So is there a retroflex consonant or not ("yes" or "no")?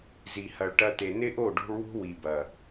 yes